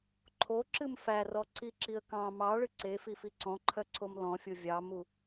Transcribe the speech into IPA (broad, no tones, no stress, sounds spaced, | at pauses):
ǃʰ o ǁ ɨ m f æ r ɔ ǀ i ǁ i ə̯ k ɑ̃ m ɑ ɭ ɨ ǀ e f i f i ǀ ɔ̃ ǃʰ œ ǀʰ o m l ɔ̃ fʲ o vʲ ɑ m u